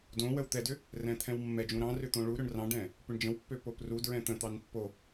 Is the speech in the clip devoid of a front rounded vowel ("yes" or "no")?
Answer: no